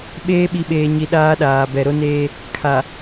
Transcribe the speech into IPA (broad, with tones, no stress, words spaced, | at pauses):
ɓeː˦ɓi˨ɓeː˨ɲi˨ ɗaː˦ɗaː˨ bɛ˨ɾo˦neː˦ | kʰa˨